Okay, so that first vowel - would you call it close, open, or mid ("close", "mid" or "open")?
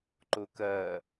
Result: mid